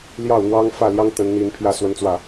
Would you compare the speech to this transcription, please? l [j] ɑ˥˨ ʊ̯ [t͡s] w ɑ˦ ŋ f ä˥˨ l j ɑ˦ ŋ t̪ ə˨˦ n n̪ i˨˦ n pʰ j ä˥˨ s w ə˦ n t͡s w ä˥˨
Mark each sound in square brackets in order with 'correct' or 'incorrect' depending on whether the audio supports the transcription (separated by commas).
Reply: correct, incorrect